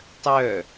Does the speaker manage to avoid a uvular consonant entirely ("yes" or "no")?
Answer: yes